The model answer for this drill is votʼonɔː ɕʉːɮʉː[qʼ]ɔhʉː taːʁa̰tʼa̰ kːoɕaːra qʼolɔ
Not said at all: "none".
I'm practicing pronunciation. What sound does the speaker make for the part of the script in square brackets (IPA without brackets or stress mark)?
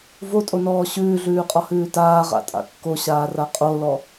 qʼ